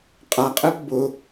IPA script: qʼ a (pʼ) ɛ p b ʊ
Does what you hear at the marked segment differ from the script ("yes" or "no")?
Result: yes